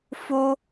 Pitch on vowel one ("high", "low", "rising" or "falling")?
high